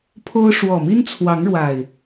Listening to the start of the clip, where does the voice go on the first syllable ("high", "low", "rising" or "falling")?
high